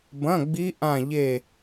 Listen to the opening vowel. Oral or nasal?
nasal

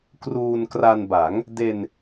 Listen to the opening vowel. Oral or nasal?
oral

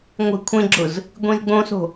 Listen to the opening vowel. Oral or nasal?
oral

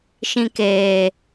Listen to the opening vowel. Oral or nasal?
nasal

